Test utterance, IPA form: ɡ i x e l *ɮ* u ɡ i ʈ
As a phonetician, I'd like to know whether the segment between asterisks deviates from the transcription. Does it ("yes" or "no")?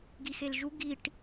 yes